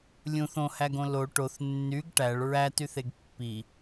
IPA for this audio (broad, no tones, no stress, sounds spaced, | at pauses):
lʲ ũ θ õ h æ ɡ õ l o ʈ o θ nː y ɡ ʈ æ ɭ ɹ æ t y θ e ɡ pː i